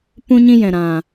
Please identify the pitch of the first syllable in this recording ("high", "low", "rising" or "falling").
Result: high